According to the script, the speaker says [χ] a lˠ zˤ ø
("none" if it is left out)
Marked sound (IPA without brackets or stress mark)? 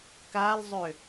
k